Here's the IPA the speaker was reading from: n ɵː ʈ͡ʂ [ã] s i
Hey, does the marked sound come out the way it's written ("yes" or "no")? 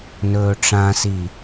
yes